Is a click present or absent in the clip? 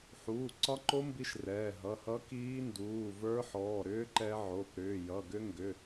present